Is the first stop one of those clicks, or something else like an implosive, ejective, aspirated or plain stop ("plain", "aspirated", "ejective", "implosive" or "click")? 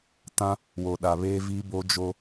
plain